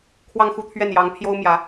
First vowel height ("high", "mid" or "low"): low